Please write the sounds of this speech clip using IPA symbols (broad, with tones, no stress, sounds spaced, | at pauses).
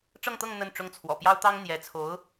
ʈ͡ʂ ɤ˥˧ ŋ t̪ ɤ˥˧ ŋ n̪ ə˥˩ n ʈ͡ʂ ʊ˥ ŋ t͡sʰ w ɔ̰˨˩ p j ɑ˥ ʊ̯ t̪ ɑ˥ ŋ n̪ j ɛ˧˥ t͡sʰ o˧˥ ʊ̯